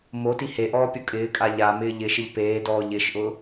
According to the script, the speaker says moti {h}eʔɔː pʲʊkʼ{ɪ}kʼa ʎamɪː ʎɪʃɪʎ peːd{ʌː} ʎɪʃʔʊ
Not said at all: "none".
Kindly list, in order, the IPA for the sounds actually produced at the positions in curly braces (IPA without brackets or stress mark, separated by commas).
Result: h, ɪː, ɔː